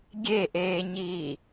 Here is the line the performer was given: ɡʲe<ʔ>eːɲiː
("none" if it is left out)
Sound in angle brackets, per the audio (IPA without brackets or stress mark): ʔ